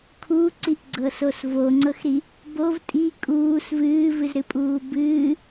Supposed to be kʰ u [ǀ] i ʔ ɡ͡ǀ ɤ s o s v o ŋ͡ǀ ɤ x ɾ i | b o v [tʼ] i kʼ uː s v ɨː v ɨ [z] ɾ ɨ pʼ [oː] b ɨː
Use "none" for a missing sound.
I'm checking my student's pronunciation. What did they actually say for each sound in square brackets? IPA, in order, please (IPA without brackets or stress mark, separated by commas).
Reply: ǀ, tʼ, z, uː